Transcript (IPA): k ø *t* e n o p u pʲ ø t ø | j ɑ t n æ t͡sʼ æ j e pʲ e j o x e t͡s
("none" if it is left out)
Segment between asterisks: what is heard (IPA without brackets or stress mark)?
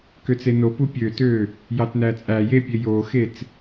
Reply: t͡s